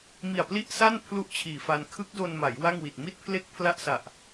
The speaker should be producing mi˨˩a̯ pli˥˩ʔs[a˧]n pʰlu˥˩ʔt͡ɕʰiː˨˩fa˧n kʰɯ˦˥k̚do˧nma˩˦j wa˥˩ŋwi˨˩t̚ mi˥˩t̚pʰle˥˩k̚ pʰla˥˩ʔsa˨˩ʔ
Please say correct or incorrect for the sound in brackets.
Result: incorrect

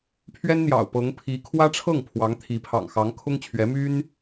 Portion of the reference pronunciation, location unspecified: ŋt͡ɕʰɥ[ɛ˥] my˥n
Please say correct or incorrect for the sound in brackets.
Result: incorrect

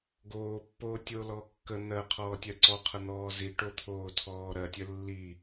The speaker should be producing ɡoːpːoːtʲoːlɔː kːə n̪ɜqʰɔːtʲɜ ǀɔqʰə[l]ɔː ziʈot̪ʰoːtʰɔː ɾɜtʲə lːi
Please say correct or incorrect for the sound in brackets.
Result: incorrect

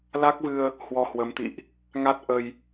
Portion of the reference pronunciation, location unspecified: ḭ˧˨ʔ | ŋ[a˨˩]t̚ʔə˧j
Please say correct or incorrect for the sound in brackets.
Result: incorrect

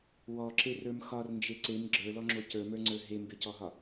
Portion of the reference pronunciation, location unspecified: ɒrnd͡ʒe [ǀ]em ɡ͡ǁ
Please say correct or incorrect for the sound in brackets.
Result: correct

